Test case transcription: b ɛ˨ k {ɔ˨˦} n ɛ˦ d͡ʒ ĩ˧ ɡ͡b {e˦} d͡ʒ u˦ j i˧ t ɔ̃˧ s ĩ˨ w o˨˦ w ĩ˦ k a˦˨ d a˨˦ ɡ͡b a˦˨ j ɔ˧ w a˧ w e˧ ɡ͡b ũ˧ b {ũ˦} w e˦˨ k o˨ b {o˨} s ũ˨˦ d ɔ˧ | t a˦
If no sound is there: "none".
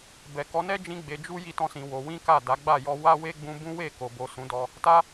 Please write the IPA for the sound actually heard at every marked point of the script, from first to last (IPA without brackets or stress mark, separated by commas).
ɔ˨˦, e˧, ũ˦, o˨